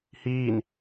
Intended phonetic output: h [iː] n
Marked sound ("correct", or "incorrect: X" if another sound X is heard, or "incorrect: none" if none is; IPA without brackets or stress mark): correct